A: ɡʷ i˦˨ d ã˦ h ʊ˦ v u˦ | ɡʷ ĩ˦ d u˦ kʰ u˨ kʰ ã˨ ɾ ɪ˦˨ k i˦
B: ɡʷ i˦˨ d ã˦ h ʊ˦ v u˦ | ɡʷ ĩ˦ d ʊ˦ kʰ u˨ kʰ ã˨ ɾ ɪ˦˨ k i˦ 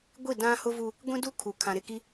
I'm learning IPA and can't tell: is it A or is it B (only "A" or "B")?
A